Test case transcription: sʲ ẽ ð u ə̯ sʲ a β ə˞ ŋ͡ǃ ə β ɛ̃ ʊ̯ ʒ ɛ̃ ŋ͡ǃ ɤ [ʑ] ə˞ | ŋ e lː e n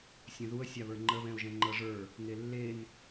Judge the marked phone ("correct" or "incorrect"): incorrect